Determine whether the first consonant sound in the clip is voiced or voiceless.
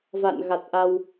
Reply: voiced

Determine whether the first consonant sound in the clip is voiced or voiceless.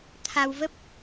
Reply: voiceless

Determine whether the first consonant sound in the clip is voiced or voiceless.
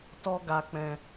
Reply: voiceless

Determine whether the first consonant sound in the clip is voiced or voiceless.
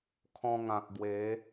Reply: voiceless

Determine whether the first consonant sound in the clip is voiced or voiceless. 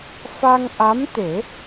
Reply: voiceless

